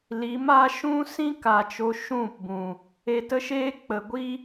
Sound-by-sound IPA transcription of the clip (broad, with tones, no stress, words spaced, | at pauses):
li˨˦ma˦ ʃũ˦sĩ˦ka˨ t͡ʃo˧ʃũ˦˨pbũ˨ | e˧tə˦ʃeː˦ k͡pə˨ɡʷi˦